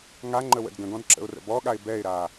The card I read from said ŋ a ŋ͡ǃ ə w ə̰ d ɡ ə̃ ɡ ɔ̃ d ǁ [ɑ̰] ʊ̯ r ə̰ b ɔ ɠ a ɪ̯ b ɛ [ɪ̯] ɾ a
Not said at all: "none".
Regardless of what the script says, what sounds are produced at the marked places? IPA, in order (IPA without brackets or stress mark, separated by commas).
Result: ə̰, ɪ̯